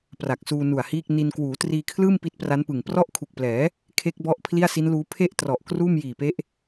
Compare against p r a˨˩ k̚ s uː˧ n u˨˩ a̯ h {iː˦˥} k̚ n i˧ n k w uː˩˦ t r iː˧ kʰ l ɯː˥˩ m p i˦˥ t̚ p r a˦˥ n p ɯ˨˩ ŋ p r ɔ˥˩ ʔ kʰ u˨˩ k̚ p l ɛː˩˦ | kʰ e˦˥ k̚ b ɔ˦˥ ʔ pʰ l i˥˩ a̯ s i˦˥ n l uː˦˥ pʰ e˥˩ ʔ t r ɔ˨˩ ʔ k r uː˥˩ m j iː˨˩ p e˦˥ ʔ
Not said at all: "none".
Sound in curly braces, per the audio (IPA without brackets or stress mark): iː˥˩